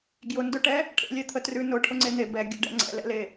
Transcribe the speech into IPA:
ɡ j ʊ n d ʊ ʈ ɛ | ʈʰ ḛ lʲ ɛ t̪ʰ ə t r ʉ n ʊ ʈʰ ʊ ŋ͡ǀ e n̪ e b ɛ ɡʲ ə̰ ɖ ɛ̰ ŋ͡ǀ ɛ̰ l ɛ̰ l e

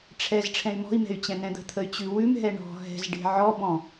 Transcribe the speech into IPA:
ʈ͡ʂʰ ɛ z ʈ͡ʂʰ ɛ̃ y̯ m ɔ̤ i̯ m ɛ̤ y̯ t͡ɕ ɛ̃ n ɛ̃ d̪ ə̤ t̪ʰ ə y̯ t͡ɕ ʉ w ʉ m ɦ ɛ ɳ ɔ̤ ɦ ɛ̤ z ɖ e̤ ʕ ɔ b ɔ̃

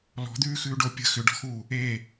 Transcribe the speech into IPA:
l ɔ̤ d̪ ʉː x ʉː ɖ o pʲ ə̤ x ʏ ɖ ɔ̤ x uː | eː

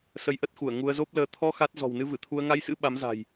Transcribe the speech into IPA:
s ə˧ j ʔ ə˦˥ t̚ x u˧˩ ə̯ ŋ u˧ ə̯ z o˦˥ p̚ l əː˧ t̪ʰ ɔ˧ x a˦˥ t̚ z ɔ̤˨˩ w n ɨ˧ v ɨ˧˩ t̪ʰ u˧ ə̯ ŋ a˧ j s ɨ̰˧˥ ɓ a˨˦ m z a̤˨˩ j

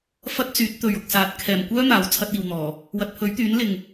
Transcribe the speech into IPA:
f ɐ˥ t̚ t͡s yː˨˥ t̚ t̪ ɵ˨ ɥ ʊ˨ k̚ s aː˨ t̚ kʰ ɛː˨˩ m kʷ œː˥ n̪ aː˨˥ w t͡sʰ ɐ˧ t̚ iː˨ w n̪ ɔː˨˩ | w ɐ˨ t̚ pʰ ɵ˨˥ ɥ t̪ yː˨˥ n l ɪ˨ ŋ

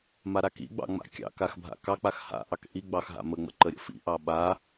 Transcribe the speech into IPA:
m a ɾ a k ḭ ɡ͡b ɑ̰ ŋ͡m a̰ kʲ ɑ̰ k a x bʱ a̰ k ɑ k͡p a x h a̰ ʔ ɑ k ʔ i ɡ͡b ɑ x ɦ a̰ m ə ŋ͡m ə̰ ǃ ə ɾʲ ə̰ f ḭ ʔ ɑ ɓ a

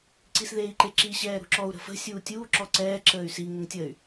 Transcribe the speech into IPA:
ǀ i s ð eː i̯ ǃ e ǁ i ɕ ɛː ɾ ṳ ǁ ɔ u̯ ɾ ə̤ f ə̤ sʲ uː tʲ uː ǁ ɔ ǀ ɛː ǁ əː y̯ s i ŋ ə ŋ tʲ əː y̯

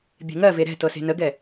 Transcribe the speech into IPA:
bʲ e̤ ŋ ɜ v e ɾ ɛ̤ t ɤ s e̤ n ə ɡ ɛ

